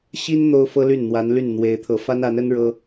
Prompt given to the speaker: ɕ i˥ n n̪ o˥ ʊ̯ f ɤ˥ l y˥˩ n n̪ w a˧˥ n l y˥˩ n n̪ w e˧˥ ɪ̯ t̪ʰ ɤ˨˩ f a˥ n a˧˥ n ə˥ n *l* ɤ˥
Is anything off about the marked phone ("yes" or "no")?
yes